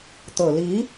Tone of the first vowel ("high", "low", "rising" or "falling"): low